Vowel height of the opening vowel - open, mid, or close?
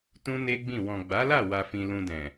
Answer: close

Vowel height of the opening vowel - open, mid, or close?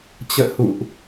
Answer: mid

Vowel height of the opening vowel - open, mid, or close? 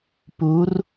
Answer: close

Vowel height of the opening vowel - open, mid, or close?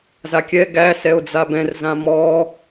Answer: open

